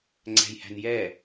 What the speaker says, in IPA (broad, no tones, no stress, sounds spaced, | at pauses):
ŋ͡ǀ æ̤ j h æ̤ n j ɛ